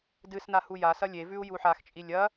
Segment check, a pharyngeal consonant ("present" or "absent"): present